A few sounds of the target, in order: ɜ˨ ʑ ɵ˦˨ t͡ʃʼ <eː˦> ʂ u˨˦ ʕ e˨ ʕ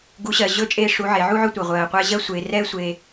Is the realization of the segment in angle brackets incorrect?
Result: no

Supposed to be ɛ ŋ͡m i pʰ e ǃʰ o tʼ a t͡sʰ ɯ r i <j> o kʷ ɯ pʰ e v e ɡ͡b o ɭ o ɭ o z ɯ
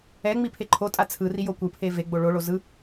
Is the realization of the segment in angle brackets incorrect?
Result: no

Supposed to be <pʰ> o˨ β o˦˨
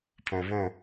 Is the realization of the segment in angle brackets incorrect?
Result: no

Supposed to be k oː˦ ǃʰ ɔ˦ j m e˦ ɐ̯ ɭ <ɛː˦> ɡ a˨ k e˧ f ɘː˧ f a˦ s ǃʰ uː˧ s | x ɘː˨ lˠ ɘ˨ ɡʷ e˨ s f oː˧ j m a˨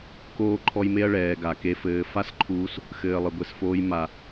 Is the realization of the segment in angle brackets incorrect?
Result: yes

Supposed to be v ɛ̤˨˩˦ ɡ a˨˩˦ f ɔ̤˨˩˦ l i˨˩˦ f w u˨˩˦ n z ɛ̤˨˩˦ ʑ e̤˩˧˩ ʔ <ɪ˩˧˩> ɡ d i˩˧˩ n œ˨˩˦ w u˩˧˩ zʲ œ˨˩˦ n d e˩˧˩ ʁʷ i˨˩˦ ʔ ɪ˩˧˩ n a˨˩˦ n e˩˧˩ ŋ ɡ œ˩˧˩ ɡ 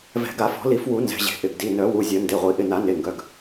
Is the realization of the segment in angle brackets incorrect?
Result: no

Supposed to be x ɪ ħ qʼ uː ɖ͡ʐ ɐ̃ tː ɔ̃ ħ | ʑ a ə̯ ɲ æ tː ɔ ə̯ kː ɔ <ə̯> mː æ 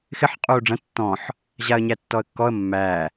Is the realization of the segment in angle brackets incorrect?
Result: no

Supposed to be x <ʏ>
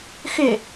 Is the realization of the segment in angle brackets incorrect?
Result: no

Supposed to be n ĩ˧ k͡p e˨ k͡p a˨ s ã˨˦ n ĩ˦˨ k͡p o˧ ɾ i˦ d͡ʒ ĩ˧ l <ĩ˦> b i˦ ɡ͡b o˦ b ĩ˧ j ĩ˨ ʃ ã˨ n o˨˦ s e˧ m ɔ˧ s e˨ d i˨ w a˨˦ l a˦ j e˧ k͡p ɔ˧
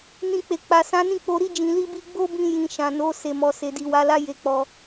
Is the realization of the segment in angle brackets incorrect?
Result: yes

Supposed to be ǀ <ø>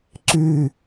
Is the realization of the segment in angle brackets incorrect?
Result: yes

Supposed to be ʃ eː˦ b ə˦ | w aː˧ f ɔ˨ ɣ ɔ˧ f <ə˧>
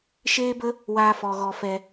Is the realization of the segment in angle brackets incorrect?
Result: yes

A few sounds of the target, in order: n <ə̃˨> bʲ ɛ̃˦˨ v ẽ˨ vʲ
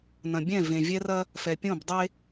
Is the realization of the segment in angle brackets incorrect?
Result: yes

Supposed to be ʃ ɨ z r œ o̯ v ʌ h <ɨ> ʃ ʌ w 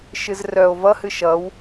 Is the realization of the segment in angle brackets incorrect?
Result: no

